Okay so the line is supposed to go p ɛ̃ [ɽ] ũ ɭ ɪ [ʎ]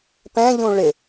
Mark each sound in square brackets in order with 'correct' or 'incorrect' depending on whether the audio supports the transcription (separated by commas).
incorrect, incorrect